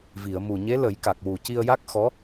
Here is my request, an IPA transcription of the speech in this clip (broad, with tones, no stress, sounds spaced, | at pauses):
v i˨˩˨ ə̯ m u˨˩ ɲ e˧˥ l ə˨˩˦ j k a˨˩ k̚ w u˨˩ c i˧ ə̯ j a˦˥ k̚ x ɔ˧˥